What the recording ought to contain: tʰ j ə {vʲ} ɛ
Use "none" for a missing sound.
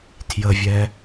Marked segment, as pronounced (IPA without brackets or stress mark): vʲ